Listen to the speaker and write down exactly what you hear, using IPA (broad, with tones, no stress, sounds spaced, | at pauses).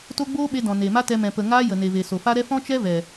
t o˦ ɡ͡b oː˦ ɓ e˧ d ɔ̃˨ n e˨ m a˦ t ɛ˧ m ɛ̃˨ p ə˨ ŋ aː˦ j ə˨ n e˨ v e˨ s o˨ f a˦ ɾ ɛ˦ f ɔ̃˦ t͡ʃ ɛ˦ v ɛ˨